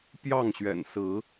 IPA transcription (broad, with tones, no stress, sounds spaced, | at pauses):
p j ɑ˥˨ ŋ ɕ ɥ ɛ̰˨˩ n s ɹ̩˨˦